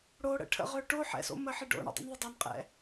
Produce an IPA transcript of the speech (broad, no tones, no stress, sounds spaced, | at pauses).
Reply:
ɽ o ɽ ə̰ ʈʰ ə̰ ʁ ø ʈ o ħ ɛ̰ s o̰ m ə ħ ɪ ɖ o̰ ɳ ə̰ dˤ ḭ n ðˤ ɪ dˤ œ n qʼ ɛ̰